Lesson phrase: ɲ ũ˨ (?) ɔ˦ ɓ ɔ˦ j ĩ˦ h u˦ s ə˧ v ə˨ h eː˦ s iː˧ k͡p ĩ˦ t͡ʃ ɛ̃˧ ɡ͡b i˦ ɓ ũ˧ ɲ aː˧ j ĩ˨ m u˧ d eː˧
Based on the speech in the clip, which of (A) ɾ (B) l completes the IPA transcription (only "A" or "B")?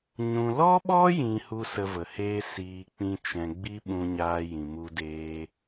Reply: B